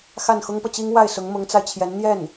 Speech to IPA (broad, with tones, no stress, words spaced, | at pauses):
xa˥˩nxʊ˥ŋpɤ˨t͡ɕi˥ŋ wa˥˩ɪ̯sʊ˧˥ŋ mʊ˧˥ŋt͡sa˧ɪ̯t͡ɕʰjɛ˧˥n n̪jɛ˥˩n